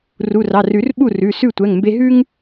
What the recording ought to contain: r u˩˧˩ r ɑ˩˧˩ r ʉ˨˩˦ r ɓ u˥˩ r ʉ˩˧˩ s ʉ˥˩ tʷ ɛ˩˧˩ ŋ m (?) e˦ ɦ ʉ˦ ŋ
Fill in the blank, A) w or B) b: B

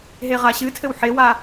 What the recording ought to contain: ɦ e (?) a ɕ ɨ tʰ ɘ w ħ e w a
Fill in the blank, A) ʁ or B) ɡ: A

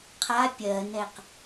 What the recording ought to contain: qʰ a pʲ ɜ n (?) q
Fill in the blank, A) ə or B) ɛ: B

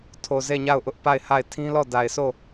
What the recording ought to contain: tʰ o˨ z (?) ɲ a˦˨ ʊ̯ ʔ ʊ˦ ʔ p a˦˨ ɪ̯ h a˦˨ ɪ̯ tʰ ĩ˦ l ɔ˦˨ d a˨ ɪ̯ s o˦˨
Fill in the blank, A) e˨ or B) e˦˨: B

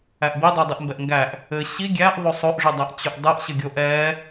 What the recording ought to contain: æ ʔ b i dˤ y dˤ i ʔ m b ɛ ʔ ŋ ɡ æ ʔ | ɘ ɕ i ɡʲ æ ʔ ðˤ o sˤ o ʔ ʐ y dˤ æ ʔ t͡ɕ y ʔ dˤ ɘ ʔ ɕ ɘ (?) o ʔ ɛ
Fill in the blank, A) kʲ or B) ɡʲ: B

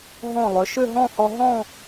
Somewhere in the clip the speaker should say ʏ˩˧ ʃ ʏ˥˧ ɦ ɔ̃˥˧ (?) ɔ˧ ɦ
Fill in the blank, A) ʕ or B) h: B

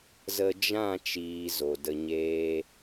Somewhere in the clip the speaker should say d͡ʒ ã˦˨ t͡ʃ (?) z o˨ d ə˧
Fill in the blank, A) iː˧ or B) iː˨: B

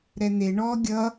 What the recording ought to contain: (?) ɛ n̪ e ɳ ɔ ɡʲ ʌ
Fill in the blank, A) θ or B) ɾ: B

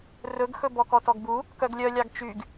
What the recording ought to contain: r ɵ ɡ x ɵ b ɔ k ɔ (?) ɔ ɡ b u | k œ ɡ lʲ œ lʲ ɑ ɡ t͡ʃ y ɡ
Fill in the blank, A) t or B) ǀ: A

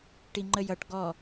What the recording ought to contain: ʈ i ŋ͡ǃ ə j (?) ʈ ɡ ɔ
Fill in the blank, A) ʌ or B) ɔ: A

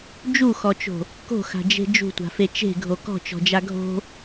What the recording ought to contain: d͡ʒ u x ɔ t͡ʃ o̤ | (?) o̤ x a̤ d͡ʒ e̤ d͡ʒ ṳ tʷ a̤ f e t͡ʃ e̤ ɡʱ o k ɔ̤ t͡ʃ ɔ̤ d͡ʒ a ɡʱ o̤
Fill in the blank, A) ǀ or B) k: B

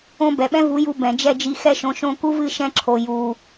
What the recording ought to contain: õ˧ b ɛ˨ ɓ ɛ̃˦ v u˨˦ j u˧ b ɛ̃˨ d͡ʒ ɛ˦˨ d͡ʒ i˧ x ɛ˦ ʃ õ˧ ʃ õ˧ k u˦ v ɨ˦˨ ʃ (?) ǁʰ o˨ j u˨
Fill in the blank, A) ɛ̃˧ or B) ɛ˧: A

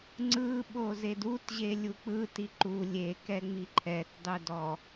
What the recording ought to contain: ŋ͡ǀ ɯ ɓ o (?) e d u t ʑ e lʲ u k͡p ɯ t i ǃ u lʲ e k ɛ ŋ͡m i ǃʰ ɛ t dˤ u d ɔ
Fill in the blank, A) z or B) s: A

